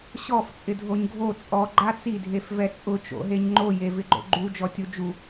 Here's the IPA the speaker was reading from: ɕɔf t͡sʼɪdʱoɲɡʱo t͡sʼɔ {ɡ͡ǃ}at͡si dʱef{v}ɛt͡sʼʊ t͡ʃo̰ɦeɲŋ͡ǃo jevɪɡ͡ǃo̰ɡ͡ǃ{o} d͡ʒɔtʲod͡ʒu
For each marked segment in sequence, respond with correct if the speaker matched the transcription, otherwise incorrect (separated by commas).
correct, correct, incorrect